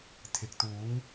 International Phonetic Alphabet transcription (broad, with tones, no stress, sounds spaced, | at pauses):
t̪ʰ ɪ˨ k̚ t̪ uː˨˥ ŋ